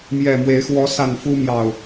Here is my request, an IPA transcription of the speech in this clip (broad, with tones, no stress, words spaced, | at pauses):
mjɛ˨˩mwe˨˦ɪ̯ xwɔ˨˦sa˨˩n fu˦ mjɑ˨˩ʊ̯